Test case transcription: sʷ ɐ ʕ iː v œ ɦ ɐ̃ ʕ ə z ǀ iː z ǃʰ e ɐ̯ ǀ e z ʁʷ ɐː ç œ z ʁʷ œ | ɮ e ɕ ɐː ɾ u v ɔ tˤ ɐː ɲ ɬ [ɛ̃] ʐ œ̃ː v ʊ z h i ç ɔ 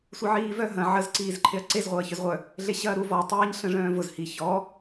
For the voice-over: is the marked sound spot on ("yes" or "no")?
no